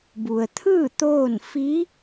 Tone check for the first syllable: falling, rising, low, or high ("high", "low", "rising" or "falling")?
low